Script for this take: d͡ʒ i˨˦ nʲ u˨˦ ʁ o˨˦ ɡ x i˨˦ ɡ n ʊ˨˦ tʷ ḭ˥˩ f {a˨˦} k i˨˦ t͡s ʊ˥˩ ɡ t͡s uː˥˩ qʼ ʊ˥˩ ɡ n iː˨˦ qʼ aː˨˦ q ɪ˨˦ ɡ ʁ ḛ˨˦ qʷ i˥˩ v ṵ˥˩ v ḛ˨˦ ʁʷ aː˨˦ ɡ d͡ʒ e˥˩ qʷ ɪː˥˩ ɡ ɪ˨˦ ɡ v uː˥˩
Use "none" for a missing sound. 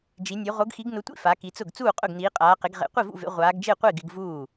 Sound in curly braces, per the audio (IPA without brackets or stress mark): a˨˦